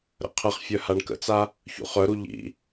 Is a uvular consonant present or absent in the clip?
present